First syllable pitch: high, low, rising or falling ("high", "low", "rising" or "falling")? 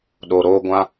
low